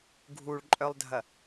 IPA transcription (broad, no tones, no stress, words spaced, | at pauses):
ɡʱuɭǃʼœlˠdʱɐ